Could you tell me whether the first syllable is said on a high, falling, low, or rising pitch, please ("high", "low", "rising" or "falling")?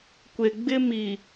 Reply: low